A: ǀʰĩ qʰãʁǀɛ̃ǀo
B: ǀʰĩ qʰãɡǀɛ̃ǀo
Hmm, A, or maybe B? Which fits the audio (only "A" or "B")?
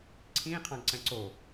B